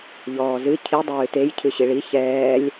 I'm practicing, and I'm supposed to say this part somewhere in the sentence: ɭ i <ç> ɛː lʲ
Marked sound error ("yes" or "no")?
no